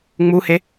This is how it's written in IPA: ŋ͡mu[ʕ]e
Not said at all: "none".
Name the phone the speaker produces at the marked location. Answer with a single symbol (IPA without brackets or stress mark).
h